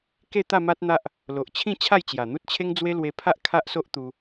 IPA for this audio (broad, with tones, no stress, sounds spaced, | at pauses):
k e˥˧ t̪ a˥˧ m a˦ t̚ n̪ a˦ ʔ | l o˨ ʔ t͡ɕʰ ĩ˥˧ t͡ɕʰ a˥˧ j t͡ɕ j a˨˩ n̪ u˦ t̚ t͡ɕʰ e˦ ŋ d͡z w e˦ l w e˧ pʰ a˦ ʔ kʰ a˦ ʔ s o˦ ʔ t̪ u˧